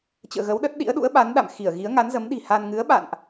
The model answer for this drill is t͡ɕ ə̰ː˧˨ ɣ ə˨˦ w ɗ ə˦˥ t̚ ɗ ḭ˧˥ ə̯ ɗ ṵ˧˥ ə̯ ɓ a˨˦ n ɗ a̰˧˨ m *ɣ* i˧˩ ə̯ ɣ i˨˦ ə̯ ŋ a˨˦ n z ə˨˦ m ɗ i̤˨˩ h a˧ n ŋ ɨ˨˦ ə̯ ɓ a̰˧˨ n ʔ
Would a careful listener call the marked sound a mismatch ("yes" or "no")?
yes